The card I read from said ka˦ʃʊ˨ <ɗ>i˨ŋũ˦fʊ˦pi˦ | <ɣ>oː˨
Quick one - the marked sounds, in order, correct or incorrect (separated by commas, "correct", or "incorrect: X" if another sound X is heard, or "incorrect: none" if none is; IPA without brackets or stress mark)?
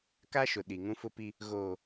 correct, correct